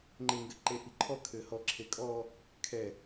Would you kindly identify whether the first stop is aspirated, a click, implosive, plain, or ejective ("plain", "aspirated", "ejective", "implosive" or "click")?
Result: click